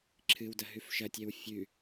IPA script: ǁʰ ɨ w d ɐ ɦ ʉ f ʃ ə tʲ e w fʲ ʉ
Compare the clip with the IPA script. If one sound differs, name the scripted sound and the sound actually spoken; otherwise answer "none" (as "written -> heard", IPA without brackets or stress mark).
ə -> ɐ